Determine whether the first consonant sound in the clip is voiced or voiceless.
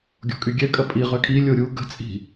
voiced